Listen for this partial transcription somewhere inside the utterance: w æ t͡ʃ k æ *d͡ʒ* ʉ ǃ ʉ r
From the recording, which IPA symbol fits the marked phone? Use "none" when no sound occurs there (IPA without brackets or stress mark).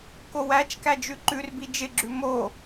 d͡ʒ